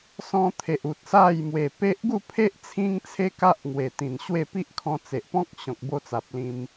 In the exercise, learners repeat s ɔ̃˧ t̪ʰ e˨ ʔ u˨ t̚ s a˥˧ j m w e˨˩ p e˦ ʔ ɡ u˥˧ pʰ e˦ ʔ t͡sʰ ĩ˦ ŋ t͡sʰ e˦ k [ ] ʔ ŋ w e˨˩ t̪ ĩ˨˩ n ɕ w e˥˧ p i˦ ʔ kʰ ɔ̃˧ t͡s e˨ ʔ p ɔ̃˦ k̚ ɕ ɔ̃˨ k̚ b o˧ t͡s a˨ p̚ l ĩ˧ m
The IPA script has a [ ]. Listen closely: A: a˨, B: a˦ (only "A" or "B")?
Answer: B